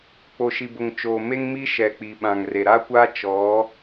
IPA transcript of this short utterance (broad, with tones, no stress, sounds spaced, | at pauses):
k͡p o˨ ʃ i˨ b ʊ˨ ŋ t͡ʃ oː˨ m e˦ ŋ m iː˦ ʃ ɛ˨ k͡p i˨ ɓ ã˨ ŋ r e˨ ɾ a˦ kʷ aː˦ t͡ʃ ɔ˨˦